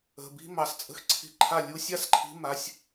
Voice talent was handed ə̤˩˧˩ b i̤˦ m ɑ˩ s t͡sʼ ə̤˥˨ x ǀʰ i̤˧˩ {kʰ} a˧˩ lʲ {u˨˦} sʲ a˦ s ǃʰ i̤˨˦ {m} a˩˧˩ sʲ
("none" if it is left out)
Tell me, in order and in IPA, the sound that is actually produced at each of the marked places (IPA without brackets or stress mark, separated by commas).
ǃʰ, u˨˦, m